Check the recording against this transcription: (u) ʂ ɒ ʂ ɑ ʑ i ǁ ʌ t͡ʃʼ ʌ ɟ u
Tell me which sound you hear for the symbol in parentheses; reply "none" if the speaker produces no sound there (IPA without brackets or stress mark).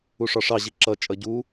u